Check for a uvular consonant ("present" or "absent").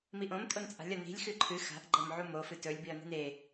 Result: absent